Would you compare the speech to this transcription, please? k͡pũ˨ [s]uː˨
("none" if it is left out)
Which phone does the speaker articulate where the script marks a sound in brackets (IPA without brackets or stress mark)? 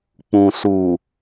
s